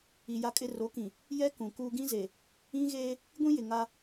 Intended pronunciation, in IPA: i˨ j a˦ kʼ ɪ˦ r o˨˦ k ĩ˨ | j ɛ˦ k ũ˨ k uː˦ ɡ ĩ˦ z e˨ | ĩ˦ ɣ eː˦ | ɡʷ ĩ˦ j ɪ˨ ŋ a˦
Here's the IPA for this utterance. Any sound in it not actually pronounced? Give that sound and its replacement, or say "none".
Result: none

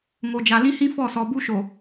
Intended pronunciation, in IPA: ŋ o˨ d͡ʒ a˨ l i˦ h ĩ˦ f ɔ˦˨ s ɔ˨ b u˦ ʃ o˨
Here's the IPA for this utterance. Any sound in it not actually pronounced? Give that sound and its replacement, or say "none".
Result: i˦ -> ĩ˦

